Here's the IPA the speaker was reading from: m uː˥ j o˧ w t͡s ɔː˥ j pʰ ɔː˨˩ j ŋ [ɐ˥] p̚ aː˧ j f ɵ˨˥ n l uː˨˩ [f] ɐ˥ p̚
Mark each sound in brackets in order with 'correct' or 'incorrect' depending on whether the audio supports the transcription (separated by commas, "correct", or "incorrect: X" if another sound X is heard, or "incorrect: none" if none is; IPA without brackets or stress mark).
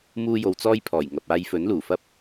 incorrect: ɐ˨, correct